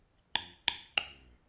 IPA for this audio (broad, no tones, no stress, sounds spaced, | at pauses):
ǃ ɨː ɡ͡ǃ ɨ k ɡ͡ǃ ø ə̯